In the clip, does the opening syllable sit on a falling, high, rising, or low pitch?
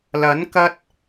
rising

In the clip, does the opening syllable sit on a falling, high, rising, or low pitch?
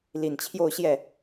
low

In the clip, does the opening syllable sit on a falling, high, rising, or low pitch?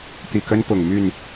low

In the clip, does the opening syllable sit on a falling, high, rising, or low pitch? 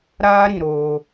high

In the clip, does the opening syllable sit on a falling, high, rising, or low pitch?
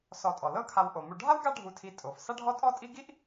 low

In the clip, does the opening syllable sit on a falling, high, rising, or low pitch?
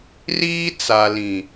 high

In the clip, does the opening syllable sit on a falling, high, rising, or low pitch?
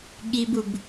high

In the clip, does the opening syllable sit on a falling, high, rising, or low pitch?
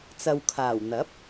low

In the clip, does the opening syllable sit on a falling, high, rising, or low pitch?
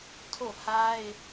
falling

